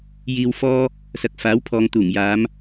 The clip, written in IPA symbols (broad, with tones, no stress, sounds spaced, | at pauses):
j iː˧ w f ɔː˥ | s ɐ˨ k̚ f aː˨˥ w pʰ ɔː˨ ŋ t̪ uː˨˩ ŋ j aː˨˧ m